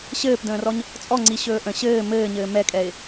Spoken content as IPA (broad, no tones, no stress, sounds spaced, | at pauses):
ɕ ɘː p d ə̃ː r ɔ ɲ | t͡sʼ ɔ ŋ͡ǀ i ɕ ɵː ʔ ə̃ ɕ ɘː m ɘː ɲ ɘː m ɛ kʼ ɛ ɪ̯